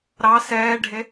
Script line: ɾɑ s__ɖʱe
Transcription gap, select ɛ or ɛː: ɛː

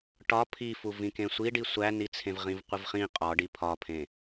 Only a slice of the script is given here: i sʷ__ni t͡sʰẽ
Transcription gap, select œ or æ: æ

